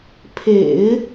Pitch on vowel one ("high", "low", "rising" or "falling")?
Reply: low